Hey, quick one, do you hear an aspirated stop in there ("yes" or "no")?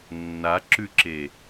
no